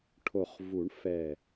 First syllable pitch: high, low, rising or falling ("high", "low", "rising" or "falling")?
low